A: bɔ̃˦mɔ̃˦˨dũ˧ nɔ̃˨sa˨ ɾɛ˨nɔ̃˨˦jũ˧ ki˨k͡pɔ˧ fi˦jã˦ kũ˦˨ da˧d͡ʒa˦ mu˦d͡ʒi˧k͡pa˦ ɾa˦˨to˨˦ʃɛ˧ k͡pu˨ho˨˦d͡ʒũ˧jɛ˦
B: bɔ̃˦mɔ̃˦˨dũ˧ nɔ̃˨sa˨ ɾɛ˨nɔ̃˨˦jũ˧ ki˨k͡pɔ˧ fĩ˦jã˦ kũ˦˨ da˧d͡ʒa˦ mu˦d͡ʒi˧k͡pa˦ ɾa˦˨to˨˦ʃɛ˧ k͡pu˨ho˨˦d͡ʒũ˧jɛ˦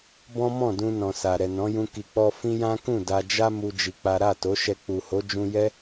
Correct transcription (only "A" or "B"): B